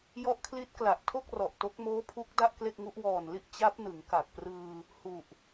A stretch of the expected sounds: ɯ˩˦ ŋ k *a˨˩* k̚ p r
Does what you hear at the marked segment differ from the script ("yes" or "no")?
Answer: no